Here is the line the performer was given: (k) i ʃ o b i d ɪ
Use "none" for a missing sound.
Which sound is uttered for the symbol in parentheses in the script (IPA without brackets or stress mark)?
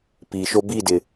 p